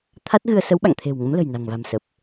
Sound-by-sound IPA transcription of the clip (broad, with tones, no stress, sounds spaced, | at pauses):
t̪ʰ a˦˥ t̚ ɣ ɨ˧ ə̯ s ə˨˦ w ɓ a̰˧˨ ŋ t̪ʰ e̤˨˩ w ŋ ə˨˦ m l ə̤˨˩ j n a̤˨˩ ŋ v a̤˨˩ m s ə˨˩ p̚